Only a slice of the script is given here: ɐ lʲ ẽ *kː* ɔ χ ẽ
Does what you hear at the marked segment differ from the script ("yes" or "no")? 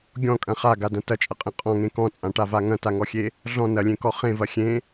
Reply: yes